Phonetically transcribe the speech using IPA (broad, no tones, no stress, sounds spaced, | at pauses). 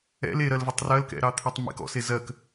ɛ̰ l e ɾ ɜ l v ɛ tˤ r ɜ l k ɛ̰ ɾ ɑ t̪ʰ e tˤ m ḛ k ɔ̰ s e z ɜ k